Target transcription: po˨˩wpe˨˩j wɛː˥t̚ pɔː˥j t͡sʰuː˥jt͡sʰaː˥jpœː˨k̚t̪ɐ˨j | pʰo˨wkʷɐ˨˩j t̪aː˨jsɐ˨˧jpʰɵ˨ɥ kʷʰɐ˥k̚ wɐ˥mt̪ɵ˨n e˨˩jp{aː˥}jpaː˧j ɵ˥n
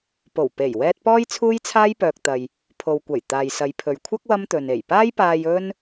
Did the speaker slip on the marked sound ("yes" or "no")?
no